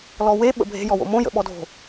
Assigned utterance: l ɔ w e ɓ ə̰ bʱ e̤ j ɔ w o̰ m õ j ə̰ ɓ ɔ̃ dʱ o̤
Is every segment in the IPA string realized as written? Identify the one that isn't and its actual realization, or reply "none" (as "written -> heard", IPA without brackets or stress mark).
ɔ̃ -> ɔ